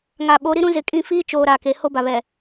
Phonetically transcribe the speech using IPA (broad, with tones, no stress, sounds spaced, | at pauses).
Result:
ŋ a˨ ɓ o˨˦ ɾ i˦ ɾ ũ˦ z ɪ˨ kʼ ĩ˦˨ f iː˦ t͡ʃ oː˨ ɾ a˨ k e˨ h o˦ b a˨ β ɛ˨